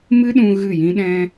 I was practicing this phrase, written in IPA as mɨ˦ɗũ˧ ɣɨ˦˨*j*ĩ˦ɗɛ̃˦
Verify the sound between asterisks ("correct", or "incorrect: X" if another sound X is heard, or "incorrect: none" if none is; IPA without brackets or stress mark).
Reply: correct